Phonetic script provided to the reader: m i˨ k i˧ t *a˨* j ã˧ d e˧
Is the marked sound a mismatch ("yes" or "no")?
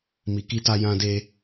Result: yes